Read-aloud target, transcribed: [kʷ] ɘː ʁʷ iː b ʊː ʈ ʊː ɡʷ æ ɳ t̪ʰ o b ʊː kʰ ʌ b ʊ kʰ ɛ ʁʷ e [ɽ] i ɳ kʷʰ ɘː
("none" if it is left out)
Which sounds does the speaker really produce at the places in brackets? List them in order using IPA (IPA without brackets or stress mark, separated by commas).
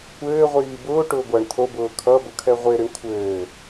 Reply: kʷ, ɾ